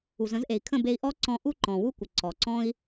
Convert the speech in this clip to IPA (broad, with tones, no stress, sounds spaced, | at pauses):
u˨ z ə̃˧ z ʔ e˨ i̯ kʰ ə̃˦˨ b e˧ i̯ ʔ ɔ˦ ǀ ɔ̃˧ ʔ u˦ ǃ ɔ̃˨ w u˦ kʷ ə˨ ǀ ɔ˨ ǀ ɔ̃˦ i̯